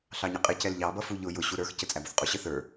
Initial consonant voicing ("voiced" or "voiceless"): voiceless